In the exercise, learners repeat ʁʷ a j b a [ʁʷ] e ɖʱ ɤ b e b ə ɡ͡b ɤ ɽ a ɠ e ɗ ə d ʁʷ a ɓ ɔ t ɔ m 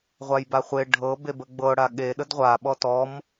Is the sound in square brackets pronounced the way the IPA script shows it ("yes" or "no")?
no